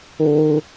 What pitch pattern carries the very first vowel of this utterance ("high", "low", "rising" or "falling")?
high